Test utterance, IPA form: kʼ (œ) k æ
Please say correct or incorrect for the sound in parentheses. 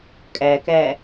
incorrect: æ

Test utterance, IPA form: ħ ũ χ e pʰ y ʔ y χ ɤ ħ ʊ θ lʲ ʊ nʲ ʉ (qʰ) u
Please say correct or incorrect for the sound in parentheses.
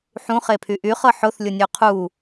correct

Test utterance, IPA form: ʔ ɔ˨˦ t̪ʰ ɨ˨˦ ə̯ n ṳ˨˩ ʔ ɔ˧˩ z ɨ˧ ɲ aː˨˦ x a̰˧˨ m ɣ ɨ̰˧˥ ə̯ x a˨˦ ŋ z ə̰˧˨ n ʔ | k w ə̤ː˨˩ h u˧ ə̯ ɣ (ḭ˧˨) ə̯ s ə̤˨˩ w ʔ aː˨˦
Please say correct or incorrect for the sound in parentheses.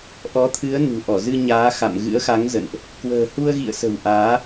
correct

